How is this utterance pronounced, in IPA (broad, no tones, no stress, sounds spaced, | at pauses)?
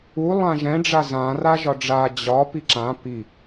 u lˠ ã ʒ ɛ̃ ɖ͡ʐ a z ã r a ʒ ɒ ɖ͡ʐ a d͡ʑ ɒ p i ǁ ã p i